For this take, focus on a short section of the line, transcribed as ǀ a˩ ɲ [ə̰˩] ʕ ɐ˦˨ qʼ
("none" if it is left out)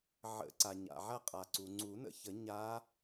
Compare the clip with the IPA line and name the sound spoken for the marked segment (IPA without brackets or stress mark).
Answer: a̰˩